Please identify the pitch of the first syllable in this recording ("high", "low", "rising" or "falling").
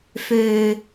low